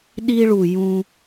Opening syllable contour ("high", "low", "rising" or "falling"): high